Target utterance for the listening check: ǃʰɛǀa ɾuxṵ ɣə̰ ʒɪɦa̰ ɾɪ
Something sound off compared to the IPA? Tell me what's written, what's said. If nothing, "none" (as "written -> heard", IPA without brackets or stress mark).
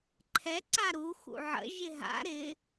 ɣ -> ʕ